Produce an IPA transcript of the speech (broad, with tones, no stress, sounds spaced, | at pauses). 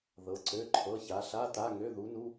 ð ɤ˧˥ ǀ ø˧˥˧ ǃʰ ɤ˧˥˧ ç a˧˥ ɬ a˧˥˧ t a˧˥˧ ŋ ø˧˥˧ ð u˧˥ n u˧˥˧